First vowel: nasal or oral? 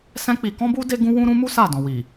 nasal